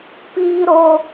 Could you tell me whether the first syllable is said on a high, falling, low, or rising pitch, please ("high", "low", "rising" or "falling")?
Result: high